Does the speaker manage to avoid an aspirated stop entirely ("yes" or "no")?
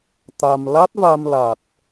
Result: yes